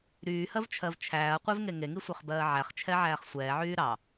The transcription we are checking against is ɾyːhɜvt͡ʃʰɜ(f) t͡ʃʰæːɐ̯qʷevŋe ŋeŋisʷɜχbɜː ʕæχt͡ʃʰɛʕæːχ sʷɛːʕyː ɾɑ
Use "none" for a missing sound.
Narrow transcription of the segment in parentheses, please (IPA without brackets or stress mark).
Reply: v